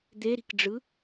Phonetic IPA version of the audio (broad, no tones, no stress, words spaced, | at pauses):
d̪eɾi̤kɖ͡ʐɯ